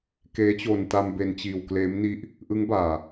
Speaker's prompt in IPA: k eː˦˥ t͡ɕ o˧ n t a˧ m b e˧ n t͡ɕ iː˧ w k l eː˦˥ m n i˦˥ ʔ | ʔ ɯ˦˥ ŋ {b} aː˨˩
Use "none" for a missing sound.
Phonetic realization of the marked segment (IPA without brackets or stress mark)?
b